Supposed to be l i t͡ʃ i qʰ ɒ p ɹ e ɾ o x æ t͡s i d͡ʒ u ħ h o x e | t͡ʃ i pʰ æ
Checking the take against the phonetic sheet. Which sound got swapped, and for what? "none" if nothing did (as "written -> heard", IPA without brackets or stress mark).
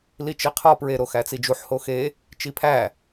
none